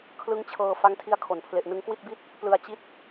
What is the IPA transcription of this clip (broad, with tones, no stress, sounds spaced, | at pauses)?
kʰ l ɯ˦˥ ŋ t͡ɕʰ ɤː˧ f a˦˥ ŋ tʰ i˦˥ a̯ kʰ o˩˦ n pʰ l e˨˩ ʔ n ɯ˧ ŋ k w i˥˩ t̚ b i˥˩ t̚ | p l ɯ˧ a̯ t͡ɕ i˦˥ t̚